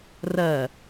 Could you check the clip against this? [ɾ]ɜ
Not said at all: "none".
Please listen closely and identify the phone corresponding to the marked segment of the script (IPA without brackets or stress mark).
r